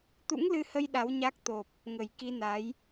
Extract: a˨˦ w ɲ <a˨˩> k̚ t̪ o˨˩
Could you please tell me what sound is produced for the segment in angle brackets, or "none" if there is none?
a˦˥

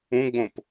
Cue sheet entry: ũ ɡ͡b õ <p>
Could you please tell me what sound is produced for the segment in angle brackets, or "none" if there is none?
p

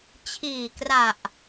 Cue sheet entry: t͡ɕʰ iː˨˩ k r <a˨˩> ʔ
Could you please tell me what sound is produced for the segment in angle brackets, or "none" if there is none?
a˨˩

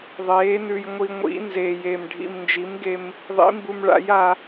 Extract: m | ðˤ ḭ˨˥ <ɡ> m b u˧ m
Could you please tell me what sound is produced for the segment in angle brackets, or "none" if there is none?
none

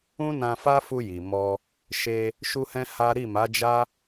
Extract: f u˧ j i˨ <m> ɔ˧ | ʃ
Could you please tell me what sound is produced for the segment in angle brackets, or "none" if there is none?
m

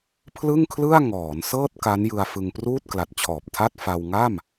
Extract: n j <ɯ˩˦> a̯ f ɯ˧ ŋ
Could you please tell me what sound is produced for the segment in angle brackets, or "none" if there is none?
ɯ˧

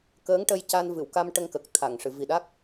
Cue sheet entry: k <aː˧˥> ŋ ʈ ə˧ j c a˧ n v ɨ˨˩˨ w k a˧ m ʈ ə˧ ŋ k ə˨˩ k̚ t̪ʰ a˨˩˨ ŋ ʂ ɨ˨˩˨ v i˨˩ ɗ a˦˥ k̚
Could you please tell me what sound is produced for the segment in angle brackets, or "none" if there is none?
əː˧˥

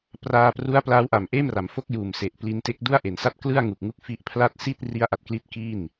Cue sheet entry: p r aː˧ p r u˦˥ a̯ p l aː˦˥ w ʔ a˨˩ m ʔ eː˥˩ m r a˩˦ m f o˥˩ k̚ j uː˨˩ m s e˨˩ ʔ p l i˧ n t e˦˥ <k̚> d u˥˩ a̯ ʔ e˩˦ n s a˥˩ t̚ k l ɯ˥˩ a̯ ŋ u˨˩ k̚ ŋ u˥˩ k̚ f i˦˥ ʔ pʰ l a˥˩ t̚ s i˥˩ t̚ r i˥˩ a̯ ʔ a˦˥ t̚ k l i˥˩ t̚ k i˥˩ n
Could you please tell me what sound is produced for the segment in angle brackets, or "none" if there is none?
k̚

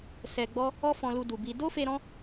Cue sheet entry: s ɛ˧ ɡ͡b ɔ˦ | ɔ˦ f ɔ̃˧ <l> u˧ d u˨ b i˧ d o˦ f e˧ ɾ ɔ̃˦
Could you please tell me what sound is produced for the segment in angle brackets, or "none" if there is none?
l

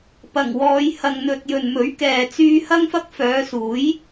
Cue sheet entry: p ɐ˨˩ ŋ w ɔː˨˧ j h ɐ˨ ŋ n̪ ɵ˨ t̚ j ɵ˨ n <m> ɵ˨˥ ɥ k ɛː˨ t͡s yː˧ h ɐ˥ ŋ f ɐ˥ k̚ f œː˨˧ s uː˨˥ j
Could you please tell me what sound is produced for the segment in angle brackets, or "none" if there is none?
m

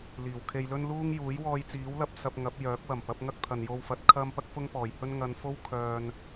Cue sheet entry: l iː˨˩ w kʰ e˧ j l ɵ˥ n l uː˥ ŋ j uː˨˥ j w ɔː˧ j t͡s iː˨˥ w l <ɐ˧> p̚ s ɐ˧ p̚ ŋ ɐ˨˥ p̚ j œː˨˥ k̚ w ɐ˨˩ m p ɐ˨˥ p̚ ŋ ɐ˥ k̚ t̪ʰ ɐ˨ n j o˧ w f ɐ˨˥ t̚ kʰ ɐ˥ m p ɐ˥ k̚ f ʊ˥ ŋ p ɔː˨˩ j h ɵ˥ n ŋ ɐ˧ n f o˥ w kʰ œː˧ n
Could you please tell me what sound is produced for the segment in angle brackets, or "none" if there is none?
ɐ˧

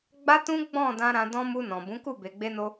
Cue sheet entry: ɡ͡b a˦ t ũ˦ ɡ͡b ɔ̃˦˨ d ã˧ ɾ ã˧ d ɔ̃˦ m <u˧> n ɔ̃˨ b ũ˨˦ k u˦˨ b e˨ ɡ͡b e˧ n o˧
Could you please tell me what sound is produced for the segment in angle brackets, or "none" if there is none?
u˧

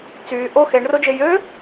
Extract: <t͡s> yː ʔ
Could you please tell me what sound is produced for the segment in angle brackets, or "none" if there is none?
t͡s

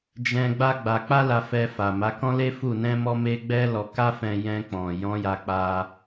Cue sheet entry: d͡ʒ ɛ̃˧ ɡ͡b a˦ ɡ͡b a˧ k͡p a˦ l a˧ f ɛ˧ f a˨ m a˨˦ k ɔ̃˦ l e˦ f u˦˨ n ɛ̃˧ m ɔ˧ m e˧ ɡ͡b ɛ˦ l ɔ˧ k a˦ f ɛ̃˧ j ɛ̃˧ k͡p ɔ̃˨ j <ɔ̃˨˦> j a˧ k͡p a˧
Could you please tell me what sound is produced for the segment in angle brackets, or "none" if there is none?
ɔ̃˨˦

